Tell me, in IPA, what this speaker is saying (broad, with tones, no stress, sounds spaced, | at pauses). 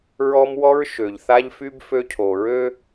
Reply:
ɹ ɔ˦ m w ɔ˦ ɹ ʃ ø˨ ʎ θ a˦ ʎ f y˦ b f ø˦ cʰ o˨ ɹ ø˦